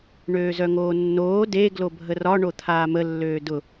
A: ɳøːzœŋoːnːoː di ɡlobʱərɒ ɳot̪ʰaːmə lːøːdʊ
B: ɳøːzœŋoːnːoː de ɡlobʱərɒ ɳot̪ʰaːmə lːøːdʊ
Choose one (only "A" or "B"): B